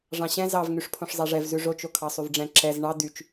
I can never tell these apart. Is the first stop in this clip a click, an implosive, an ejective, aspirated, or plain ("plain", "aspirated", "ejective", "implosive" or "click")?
aspirated